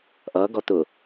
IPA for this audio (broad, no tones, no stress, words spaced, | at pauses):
ʔʌː ɡɔt̪ʊ